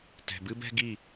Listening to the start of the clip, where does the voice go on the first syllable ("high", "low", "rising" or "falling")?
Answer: low